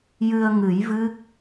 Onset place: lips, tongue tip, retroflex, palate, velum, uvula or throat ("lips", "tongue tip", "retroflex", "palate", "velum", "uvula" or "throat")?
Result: palate